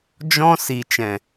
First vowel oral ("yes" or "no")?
no